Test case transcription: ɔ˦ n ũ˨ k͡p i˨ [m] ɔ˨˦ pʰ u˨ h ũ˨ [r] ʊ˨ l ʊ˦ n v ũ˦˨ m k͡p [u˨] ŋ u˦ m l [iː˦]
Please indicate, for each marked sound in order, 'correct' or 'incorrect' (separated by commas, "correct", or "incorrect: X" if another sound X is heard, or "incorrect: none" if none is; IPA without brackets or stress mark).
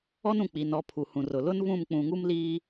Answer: incorrect: n, correct, incorrect: ũ˨, correct